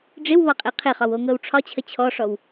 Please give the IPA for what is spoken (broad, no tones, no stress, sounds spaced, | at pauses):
ɖ͡ʐ ɪ w β ɒ qʼ e qʰ ɪ χ ɒ w o ŋ ɤ w ʈ͡ʂʰ ɒ t͡ɕʰ ə t͡ɕʰ ɔ ʂ ɔ w